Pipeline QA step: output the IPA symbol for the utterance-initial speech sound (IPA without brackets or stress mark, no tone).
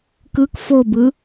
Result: k